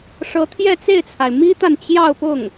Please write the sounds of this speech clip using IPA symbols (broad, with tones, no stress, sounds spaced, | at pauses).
ʂ ɤ˧˥ t̪ʰ j ɛ˥˧ t͡s e˥˩ ɪ̯ t͡sʰ a˩ ɪ̯ m i˥ t̪ a˨ n t͡ɕ j ɑ˥˧ ʊ̯ p ʊ˥˩ ŋ